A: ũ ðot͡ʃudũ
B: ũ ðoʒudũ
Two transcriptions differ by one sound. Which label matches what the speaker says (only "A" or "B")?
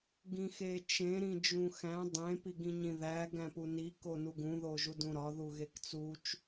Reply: B